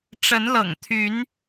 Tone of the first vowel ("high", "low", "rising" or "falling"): rising